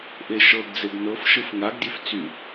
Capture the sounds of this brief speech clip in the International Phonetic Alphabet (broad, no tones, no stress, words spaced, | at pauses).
ʔeʃɤɡd͡zeɡ nɤfʃɯf ŋaɡdʲef t͡sy